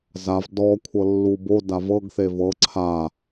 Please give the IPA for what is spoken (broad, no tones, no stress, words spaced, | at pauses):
zav dɔ kʷʰɤlːubo davɤɡ θevɤ ǀʰa